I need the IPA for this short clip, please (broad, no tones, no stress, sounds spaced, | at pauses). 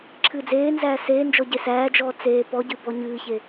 ǁʰ ɨː d͡z eː n z æː s eː n d͡ʒ ɔ ɟ e s æː d͡ʒ ɔː t͡s eː p ɔ ɟ ɨ b ɔ ɲ ɨː ç e